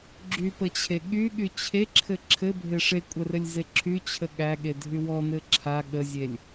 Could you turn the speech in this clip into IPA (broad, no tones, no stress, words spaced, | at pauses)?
ɡ͡ǁypət͡ɕʰe ɠyɠy t͡ɕʰeǁʰɘ ǁʰɘbʱe ʂekʷʼərɘlʲze ǁʰyt͡ɕʰə ɠæɠedʱy wɔnɘ ǁʰa ɠəzʲelʲ